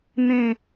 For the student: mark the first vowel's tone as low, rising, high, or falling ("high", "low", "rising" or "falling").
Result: falling